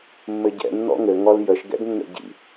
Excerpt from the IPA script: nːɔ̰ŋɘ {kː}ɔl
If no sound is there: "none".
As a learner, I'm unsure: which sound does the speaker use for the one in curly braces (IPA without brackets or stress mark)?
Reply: ŋ